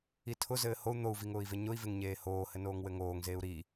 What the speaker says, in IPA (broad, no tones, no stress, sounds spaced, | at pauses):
i tʰ ʊ z ɘː h o u̯ n̪ o u̯ v i ŋ ʊː i̯ v e ɲ ʊ i̯ v e ŋ ɲ eː h oː h ɘ n oː ŋ w ɘ ŋ oː ŋ z eː u̯ ɾ i